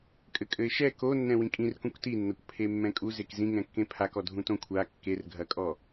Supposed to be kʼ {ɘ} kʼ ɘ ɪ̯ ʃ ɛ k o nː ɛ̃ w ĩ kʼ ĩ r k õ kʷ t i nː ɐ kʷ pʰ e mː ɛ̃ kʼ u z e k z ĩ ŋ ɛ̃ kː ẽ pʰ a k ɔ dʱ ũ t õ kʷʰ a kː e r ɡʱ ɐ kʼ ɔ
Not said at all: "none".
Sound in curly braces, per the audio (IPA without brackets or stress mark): ɘ